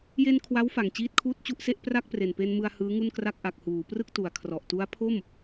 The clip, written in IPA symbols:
je˧n kʰwa˦˥wfa˨˩ŋ t͡ɕiː˥˩t̚kʰuː˥˩t̚t͡ɕu˥˩ʔse˥˩ʔ pra˥˩k̚pre˨˩npe˧nmɯ˧a̯ hɯː˦˥ŋu˥˩nkra˥˩k̚ ʔa˨˩k̚huː˩˦prɯ˥˩k̚tu˩˦a̯ kʰrɔ˨˩ʔtu˦˥a̯ pʰo˥˩m

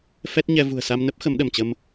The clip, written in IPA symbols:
fɛ˦˥t̚ɲɛ˧ vṳ˨˩ə̯sa˧mnə˦˥p̚ xə˨˦mɗə˧˩mt͡ɕə˧m

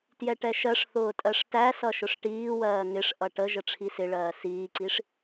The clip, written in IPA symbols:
tjɛʈɛʃɜʂθʊː tʼɜʂtæ sʌʃʊʂʈiːwɜː ŋɪʂ ʔʌʈə ʒəʈ͡ʂʰisɪɭɜː siːǀiʂ

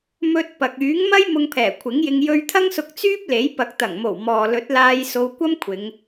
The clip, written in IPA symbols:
mɵ˧t̚pɐ˨k̚ yː˨˥ŋmɐ˥j mʊ˧ŋpʰɛː˨˩kʷʰɪ˨˥ŋjɪ˧ŋ jɵ˧ɥt̪ʰɐ˥ŋsʊ˧k̚ t͡syː˥p̚le˨˥j pɐ˨k̚t̪ɐ˨˩ŋmo˨˩w mɔː˨lɵ˨˥t̚laː˧j so˧wkʷɐ˥mkʷʰɪ˨˧ŋ

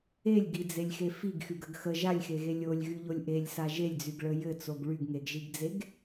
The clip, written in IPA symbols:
elʲɡid͡zelʲxe fiɡxyɡəɡ xə ʒalʲxeɣe lʲolʲɣyʎolʲ ʔelʲsa ʒelʲd͡zyɡɭə jɘt͡soɡ ɭyɡŋeɡʒiɡd͡zeɡ

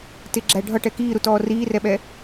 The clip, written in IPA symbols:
tɪɡ͡ǁæ ɖʱʌʈɛ kiːɾutɔː riːrɛɓɛ

